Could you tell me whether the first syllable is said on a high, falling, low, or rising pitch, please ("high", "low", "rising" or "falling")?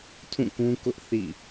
falling